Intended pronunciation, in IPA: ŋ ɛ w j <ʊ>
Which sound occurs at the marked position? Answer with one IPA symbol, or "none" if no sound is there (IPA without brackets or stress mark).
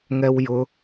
ʊ